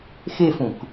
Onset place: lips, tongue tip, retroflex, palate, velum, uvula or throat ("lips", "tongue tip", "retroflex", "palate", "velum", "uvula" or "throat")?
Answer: velum